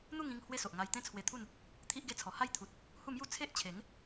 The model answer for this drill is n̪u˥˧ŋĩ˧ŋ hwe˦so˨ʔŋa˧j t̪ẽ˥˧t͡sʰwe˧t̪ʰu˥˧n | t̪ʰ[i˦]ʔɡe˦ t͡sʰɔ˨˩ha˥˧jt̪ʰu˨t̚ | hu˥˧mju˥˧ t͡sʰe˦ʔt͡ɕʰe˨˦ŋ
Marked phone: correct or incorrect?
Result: correct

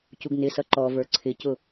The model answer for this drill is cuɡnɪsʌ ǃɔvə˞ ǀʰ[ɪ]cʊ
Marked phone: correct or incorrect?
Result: correct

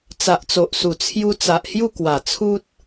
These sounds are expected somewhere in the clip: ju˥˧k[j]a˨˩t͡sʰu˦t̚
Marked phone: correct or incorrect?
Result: incorrect: w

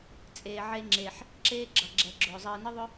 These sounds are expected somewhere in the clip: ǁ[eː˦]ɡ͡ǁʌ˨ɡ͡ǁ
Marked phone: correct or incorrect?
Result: correct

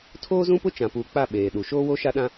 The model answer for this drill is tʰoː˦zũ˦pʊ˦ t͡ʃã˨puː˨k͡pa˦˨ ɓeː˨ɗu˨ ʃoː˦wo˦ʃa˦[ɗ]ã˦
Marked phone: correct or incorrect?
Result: correct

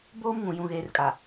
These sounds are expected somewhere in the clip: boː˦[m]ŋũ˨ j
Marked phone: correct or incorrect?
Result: correct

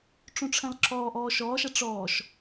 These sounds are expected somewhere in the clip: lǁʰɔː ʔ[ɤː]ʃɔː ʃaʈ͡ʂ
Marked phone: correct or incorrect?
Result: incorrect: ɔː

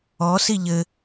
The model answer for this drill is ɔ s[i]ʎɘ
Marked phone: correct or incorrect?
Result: correct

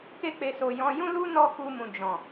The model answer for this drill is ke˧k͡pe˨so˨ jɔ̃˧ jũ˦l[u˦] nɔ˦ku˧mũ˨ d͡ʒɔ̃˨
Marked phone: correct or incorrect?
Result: correct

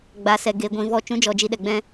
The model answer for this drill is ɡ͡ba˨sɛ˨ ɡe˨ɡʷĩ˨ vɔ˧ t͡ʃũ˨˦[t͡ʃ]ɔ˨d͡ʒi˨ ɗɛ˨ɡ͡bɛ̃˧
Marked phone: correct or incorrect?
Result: incorrect: d͡ʒ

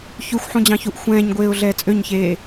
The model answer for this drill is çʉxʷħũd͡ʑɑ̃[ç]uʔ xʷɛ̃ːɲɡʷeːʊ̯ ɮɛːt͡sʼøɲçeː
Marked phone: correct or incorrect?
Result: correct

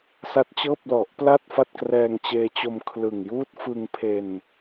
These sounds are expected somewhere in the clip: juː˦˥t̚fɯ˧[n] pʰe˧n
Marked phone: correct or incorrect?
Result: incorrect: ŋ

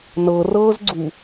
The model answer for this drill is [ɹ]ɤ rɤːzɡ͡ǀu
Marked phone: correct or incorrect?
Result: incorrect: n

